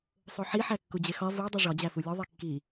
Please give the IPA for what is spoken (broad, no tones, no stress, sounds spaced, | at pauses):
sˤ o ħ i ħ æ kː u d͡ʑ e x ɒ v o dˤ i ʐ ɒ d͡ʑ æ f u lʲ o ðˤ i kː i